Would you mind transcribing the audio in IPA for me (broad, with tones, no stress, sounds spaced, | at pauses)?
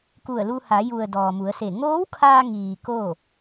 k u˧˩ ə̯ l u˧ h a˩˧ j u˩ ə̯ d ɔː˩ m u˩˧ ə̯ s e˧˩ ŋ oː˧˥ w kʰ aː˧ ŋ iː˩ k oː˥˨